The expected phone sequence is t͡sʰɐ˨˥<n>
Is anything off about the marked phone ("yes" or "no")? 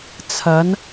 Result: no